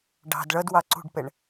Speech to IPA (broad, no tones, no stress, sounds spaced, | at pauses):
ɖ ɑ̤ d ɭ ʌ d w ɑ ǀ ṳ ɖ p ɛ ɳ